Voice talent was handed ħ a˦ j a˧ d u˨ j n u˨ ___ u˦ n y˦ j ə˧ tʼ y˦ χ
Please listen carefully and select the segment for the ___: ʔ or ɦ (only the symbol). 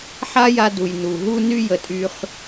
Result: ɦ